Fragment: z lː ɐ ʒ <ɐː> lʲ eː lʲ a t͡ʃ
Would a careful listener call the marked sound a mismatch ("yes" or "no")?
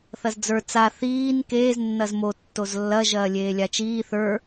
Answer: no